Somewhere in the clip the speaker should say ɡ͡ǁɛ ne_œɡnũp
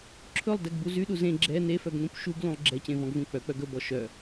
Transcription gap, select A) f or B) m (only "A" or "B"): A